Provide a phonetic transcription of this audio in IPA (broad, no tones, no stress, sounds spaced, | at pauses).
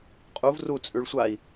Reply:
qʼ u v r u t͡sʼ ʉ ɭ sʷ a i̯